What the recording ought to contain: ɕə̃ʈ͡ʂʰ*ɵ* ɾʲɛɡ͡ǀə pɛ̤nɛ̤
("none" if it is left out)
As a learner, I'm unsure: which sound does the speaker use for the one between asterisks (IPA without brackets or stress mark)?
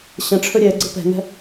ɵ